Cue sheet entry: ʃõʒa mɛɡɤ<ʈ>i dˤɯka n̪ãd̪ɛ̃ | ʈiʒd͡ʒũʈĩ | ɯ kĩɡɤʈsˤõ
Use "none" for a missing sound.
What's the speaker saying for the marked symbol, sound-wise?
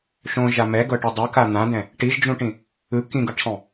ʈ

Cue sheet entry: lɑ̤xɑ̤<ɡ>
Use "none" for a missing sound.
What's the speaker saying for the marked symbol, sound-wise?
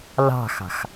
x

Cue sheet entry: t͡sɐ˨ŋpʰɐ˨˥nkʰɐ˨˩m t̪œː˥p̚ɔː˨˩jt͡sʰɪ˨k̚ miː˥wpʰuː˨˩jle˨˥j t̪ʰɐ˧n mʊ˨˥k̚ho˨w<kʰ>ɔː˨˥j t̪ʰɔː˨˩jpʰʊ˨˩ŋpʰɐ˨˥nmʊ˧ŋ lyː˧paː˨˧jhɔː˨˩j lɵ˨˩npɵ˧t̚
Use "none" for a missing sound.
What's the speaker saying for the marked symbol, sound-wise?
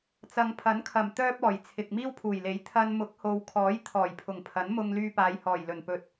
kʰ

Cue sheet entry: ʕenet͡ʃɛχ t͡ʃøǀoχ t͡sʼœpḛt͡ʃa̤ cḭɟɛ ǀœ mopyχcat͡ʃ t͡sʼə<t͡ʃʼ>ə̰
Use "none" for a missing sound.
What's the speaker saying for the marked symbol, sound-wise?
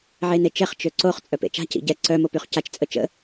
t͡ʃ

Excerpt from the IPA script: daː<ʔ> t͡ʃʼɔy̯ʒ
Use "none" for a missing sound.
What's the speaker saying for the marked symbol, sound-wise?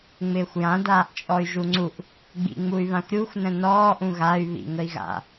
ʔ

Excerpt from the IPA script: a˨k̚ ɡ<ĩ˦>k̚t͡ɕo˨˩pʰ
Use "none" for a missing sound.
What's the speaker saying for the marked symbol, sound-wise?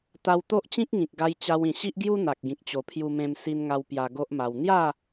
ĩ˨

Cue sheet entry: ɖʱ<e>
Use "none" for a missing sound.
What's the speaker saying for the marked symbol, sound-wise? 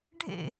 ḛ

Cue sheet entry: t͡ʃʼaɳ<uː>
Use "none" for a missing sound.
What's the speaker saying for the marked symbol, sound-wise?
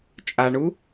u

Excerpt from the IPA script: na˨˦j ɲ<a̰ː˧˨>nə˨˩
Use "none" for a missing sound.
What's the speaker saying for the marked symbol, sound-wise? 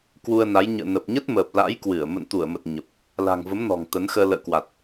ə̰ː˧˨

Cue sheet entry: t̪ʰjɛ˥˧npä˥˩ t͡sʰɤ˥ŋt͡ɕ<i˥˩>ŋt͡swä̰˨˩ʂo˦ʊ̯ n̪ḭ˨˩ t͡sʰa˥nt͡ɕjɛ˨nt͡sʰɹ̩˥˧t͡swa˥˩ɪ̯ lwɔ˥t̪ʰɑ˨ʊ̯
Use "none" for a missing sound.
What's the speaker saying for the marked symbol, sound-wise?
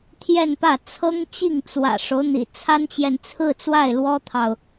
i˥˩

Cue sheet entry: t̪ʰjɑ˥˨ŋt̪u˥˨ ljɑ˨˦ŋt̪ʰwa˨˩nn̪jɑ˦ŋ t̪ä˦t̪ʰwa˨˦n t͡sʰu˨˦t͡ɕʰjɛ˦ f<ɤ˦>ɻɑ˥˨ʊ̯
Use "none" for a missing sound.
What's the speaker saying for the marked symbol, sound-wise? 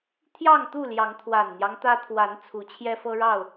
ɤ˦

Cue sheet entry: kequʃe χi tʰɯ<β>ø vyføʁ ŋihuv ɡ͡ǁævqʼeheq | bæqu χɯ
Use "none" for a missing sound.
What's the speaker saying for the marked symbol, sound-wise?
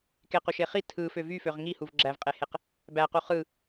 f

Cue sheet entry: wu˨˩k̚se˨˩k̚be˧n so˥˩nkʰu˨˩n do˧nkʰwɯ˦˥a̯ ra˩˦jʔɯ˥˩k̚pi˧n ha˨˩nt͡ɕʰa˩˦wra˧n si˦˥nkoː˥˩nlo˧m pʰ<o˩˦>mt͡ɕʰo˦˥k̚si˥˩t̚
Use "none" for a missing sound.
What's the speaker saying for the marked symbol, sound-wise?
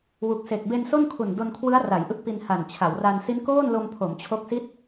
o˩˦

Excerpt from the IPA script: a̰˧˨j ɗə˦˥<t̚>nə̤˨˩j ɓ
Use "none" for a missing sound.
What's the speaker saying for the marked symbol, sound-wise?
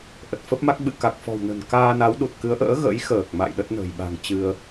t̚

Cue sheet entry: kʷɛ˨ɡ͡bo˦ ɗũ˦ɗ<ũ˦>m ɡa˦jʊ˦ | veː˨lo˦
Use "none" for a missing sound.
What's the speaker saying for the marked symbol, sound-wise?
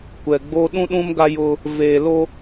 ũ˦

